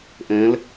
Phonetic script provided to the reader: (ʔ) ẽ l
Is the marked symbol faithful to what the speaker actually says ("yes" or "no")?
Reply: yes